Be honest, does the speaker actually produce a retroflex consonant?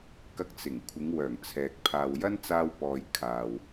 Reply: no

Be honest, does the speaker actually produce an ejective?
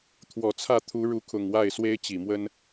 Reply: no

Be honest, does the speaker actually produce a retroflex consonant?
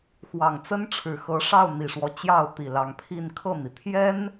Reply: yes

